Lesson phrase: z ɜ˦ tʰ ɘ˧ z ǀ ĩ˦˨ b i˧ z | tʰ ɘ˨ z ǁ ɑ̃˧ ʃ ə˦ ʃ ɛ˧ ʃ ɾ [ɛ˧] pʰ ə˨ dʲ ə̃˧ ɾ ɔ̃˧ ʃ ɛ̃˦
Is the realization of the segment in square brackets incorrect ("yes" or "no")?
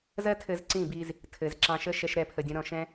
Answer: no